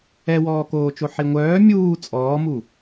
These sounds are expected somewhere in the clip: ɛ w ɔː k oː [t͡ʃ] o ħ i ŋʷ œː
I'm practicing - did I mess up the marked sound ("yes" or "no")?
no